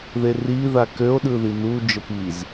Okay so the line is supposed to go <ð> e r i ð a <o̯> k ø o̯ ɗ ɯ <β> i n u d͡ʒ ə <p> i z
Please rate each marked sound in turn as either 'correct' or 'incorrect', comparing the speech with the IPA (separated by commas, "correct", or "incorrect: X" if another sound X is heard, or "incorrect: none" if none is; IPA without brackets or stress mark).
correct, incorrect: none, incorrect: ð, correct